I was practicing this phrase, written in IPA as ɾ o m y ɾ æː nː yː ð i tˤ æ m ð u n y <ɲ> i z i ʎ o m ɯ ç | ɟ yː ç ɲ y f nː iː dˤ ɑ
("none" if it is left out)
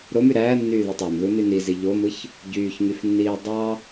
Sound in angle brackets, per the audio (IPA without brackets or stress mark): n